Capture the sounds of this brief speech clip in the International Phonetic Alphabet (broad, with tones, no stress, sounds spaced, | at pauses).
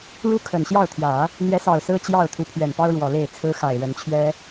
ɻ u˥˩ kʰ ə˨˩ n ɕ j ɑ˥˩ ʊ̯ t̪ʰ j ä˨˩˦ | n̪ j ɛ˧˥ s ɑ˨˩ ʊ̯ s ɹ̩˥ t͡ɕ j ɑ˥˩ ʊ̯ t̪ʰ u˧˥ pʰ ɥ ɛ˨˩ n p ɑ˥ ʊ̯ ɻ w ɔ˨˩ l e˥˩ ɪ̯ t͡sʰ ɹ̩˥ x a˨˩ ɪ̯ ɻ ə˧˥ n t͡ɕʰ ɥ ɛ˥